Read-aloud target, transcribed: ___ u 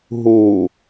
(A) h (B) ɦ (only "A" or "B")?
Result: B